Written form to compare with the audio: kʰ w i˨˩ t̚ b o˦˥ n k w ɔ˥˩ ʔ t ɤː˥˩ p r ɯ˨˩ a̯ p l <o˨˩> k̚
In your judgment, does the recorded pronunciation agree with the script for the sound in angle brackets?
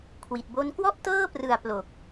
yes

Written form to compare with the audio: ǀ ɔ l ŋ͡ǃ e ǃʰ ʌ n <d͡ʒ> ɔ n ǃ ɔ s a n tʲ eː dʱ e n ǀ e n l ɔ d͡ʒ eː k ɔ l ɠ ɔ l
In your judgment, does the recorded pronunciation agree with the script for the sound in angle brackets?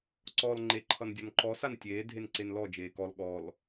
no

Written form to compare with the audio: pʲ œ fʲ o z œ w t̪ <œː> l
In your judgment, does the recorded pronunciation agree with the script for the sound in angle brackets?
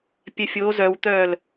yes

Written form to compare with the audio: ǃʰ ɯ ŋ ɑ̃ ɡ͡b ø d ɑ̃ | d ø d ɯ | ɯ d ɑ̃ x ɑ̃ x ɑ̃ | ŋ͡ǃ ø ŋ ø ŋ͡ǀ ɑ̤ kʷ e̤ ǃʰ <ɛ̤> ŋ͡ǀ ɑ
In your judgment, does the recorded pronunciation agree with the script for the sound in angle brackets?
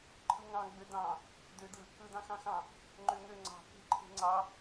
no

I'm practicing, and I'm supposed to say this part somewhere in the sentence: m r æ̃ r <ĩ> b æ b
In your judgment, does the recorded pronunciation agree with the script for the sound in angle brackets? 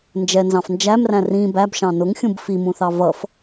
yes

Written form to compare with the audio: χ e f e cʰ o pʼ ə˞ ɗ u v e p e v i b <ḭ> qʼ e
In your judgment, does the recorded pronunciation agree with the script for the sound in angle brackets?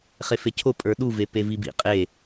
yes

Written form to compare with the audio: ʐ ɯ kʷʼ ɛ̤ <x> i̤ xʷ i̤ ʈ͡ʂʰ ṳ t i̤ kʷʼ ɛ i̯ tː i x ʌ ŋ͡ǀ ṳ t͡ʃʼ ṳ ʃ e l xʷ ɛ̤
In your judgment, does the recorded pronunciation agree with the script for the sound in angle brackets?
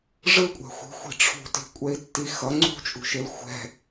no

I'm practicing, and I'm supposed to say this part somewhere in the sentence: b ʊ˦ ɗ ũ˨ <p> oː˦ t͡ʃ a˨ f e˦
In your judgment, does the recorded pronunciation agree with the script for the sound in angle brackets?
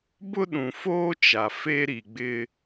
no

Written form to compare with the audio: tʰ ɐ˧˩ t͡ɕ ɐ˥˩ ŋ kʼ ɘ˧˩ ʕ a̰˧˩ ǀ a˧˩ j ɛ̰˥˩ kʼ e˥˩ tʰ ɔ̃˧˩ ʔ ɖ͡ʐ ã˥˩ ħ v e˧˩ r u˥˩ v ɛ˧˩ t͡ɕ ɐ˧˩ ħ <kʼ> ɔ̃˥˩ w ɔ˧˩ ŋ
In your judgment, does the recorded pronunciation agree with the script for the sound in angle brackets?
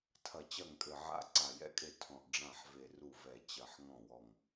no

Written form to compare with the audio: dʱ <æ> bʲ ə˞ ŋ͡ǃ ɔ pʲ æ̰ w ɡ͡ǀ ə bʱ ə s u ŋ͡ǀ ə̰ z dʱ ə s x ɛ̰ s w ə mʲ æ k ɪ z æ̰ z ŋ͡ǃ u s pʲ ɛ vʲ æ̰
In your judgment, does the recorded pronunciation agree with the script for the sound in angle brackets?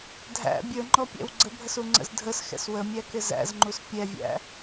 no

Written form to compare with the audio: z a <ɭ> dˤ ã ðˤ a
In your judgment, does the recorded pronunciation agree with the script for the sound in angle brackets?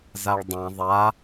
yes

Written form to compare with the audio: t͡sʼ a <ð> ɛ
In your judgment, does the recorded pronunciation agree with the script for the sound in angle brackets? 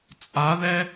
yes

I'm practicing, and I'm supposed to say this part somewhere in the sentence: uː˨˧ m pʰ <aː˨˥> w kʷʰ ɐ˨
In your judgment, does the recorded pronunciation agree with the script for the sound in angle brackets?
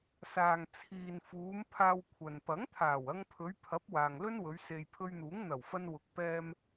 no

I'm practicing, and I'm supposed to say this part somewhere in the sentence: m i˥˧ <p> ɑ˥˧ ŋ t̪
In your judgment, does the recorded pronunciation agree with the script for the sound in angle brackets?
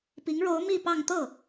yes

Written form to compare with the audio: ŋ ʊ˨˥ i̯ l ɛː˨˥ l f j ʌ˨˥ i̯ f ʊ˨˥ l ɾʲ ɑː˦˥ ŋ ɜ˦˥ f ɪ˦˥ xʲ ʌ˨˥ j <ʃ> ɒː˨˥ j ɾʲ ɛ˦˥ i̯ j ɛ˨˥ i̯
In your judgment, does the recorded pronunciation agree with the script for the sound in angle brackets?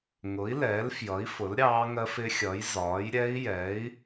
no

